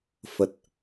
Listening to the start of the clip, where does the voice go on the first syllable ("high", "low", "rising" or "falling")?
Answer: low